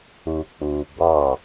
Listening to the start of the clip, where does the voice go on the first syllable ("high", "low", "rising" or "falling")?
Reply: low